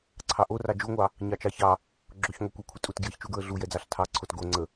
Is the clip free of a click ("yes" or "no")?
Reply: no